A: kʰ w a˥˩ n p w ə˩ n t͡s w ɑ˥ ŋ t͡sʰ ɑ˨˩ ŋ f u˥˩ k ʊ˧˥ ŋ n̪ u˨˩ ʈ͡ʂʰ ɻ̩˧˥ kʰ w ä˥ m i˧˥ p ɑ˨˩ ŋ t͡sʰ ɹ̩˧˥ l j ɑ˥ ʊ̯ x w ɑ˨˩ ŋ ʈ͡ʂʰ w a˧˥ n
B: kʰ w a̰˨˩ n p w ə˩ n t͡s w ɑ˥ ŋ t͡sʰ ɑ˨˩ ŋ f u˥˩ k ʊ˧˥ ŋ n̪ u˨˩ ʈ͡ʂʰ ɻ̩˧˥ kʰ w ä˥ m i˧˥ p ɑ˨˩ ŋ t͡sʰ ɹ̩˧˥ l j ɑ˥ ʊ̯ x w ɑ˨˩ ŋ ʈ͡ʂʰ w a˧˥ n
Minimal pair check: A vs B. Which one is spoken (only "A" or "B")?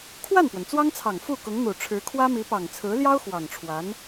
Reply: A